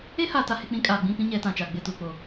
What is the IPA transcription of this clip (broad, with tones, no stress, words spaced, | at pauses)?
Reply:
e˦ha˨ ta˨he˨k͡pĩ˨˦ kʼaː˨ɡ͡bĩ˦˨pĩ˦ ɲɛ˨˦tã˨t͡ʃaː˨ ɡ͡bɪ˦˨tuː˨k͡po˨